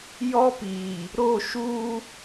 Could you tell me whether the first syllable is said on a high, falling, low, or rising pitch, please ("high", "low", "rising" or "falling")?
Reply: high